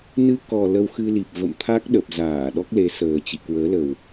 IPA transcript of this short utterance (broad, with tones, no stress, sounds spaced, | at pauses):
n ɨ˧ k ɔ˨˩ l ə˧ w x ɨ˧ l i˨˩ p̚ v ə̰˧˨ m t̪ʰ a˦˥ k̚ ɗ ə˨˩ p̚ z aː˧˩ ɗ ɔ˦˥ k̚ l e˨˦ s əː˨˩ t͡ɕ ḭ˧˨ k w əː˨˦ l ə˨˩ w